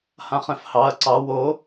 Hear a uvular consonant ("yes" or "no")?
yes